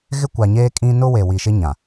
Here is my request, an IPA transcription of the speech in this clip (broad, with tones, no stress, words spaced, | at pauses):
ɣɪ˦kʷa˨ɲeː˦kʼĩ˦ nʊ˦ we˨wi˨ʃɪ˦ɲã˨